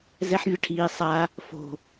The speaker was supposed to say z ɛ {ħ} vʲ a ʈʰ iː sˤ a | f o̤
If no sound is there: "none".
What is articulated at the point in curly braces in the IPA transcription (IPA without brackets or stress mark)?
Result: ħ